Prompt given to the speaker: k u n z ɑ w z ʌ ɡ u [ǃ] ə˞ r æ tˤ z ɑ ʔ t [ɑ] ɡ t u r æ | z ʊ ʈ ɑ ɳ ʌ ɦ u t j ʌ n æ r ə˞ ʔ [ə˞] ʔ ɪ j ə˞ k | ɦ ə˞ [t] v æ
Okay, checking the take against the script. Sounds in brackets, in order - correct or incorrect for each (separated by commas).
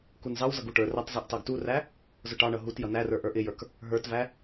incorrect, correct, correct, correct